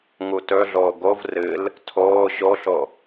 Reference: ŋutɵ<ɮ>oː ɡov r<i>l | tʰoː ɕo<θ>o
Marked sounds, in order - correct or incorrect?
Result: correct, incorrect, incorrect

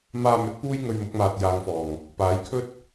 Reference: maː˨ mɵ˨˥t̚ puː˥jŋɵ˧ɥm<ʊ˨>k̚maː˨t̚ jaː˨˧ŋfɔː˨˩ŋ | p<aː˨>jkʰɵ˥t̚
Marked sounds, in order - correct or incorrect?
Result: incorrect, incorrect

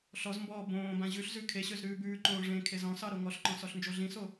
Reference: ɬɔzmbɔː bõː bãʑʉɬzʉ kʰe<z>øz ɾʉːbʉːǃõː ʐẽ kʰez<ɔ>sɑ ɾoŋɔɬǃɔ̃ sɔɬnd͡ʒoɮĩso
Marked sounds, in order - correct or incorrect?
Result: incorrect, incorrect

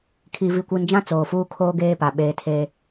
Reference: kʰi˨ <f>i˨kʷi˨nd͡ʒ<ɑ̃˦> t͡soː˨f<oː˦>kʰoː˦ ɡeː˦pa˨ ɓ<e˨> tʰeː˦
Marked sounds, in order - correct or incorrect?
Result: incorrect, incorrect, incorrect, incorrect

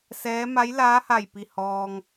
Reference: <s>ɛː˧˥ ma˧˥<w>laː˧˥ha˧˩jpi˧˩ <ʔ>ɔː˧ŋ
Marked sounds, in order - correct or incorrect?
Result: correct, incorrect, incorrect

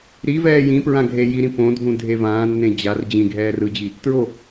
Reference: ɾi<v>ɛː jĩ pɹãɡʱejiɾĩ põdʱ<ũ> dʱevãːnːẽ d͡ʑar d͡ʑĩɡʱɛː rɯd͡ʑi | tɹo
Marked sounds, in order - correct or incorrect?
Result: correct, correct

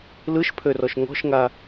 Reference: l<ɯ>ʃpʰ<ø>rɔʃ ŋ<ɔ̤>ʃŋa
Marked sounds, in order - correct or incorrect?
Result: correct, correct, correct

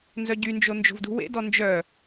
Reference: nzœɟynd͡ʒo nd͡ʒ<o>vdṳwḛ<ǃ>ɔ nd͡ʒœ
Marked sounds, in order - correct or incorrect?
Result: incorrect, incorrect

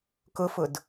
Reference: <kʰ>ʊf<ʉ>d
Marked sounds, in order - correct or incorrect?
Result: incorrect, incorrect

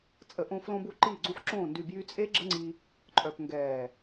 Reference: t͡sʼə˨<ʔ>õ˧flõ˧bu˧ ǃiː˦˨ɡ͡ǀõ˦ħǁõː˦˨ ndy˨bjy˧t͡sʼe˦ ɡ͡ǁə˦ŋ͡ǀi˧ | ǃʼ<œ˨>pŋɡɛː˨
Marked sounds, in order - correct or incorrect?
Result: correct, correct

